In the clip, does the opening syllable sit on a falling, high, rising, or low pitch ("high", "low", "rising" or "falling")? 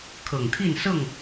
low